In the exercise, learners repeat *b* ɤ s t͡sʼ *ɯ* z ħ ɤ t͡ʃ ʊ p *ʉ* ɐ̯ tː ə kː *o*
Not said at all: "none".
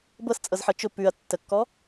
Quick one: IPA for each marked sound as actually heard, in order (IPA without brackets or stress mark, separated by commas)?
b, ɤ, ʉ, ɔ